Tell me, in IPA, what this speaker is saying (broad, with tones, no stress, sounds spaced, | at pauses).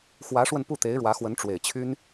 x w ä˧˥ ʂ w ə˧ n p u˥˩ t̪ e˧˥ ɪ̯ ɻ w ä˧˥ x w ə˧˥ n ʈ͡ʂ w e˨˩ ɪ̯ t͡ɕʰ y˥ n